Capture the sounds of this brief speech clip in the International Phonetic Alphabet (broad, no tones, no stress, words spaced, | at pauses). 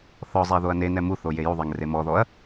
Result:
θɔzˤɛ ðoɐ̯nenɛ muθo jejuðˤɛŋ remɔðɔɐ̯